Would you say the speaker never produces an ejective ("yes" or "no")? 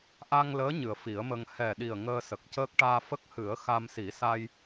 yes